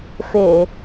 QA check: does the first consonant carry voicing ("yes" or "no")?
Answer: no